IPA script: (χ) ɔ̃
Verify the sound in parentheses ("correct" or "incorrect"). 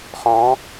correct